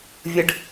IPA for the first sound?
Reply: vʲ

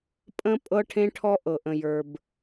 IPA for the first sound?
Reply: pʼ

